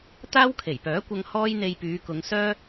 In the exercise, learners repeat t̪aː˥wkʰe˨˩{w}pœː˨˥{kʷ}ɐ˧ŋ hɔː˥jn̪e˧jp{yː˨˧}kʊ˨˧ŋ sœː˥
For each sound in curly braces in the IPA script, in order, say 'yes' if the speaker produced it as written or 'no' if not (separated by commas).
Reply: no, yes, yes